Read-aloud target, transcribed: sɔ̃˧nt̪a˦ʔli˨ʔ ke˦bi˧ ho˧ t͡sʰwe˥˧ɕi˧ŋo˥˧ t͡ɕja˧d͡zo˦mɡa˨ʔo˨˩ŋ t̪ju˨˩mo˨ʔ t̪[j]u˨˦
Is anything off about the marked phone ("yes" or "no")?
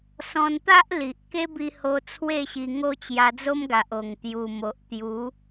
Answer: no